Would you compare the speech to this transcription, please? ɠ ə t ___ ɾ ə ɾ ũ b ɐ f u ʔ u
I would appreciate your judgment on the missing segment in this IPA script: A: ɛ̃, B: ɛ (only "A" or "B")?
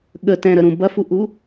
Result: A